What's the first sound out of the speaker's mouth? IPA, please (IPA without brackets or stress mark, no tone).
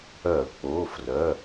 œ